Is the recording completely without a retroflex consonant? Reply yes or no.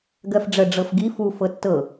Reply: no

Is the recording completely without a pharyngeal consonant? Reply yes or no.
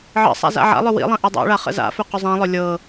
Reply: no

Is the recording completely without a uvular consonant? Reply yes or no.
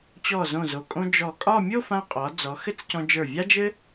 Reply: no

